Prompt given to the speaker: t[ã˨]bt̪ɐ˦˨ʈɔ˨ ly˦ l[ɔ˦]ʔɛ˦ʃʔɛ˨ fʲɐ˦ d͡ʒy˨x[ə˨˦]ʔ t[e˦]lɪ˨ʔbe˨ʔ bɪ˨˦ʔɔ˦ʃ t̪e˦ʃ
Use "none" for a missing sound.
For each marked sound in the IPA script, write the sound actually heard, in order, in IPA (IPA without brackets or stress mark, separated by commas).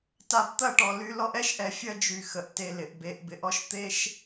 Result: a˨, ɔ˦, ə˨, e˨